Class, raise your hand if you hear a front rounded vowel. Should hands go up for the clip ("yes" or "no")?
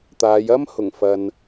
no